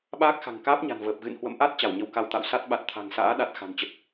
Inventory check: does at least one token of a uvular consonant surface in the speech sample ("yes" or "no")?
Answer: no